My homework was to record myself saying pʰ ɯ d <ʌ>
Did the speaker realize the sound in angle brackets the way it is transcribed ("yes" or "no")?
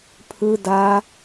no